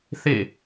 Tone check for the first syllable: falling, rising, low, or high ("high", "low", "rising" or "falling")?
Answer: falling